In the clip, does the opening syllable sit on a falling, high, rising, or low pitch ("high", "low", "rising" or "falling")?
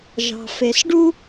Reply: low